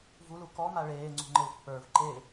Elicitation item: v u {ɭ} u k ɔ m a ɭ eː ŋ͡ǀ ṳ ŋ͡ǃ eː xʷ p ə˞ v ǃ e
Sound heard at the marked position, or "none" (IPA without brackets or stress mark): l